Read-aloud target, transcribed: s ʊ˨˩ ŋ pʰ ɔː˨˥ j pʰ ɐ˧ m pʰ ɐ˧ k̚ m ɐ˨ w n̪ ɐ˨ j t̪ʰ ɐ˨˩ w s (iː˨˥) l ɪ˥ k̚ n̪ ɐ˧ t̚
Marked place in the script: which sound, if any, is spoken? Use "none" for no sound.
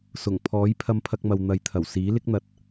iː˨˥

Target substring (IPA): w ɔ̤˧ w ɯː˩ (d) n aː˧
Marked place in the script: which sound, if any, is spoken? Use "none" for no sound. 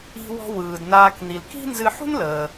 d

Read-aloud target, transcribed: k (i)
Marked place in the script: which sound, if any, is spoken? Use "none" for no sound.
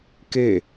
e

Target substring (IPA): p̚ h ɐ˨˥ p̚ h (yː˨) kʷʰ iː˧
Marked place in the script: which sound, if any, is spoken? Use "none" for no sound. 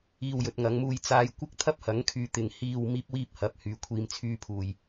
yː˨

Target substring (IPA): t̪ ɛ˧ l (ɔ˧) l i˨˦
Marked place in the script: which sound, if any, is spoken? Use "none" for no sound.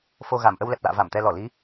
ɔ˧˩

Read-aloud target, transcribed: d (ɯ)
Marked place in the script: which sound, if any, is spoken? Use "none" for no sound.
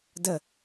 ə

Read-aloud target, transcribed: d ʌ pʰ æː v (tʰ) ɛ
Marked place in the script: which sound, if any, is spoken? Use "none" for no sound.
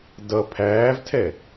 tʰ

